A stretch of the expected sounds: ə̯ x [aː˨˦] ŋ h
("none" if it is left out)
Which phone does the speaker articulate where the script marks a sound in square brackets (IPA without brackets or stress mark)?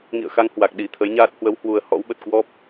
a˨˦